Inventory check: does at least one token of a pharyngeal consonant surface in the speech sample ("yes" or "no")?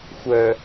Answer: no